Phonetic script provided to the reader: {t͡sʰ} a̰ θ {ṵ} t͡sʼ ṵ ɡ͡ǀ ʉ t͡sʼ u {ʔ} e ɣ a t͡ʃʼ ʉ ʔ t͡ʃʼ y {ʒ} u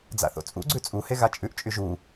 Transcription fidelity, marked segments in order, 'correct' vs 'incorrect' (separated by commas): incorrect, incorrect, incorrect, correct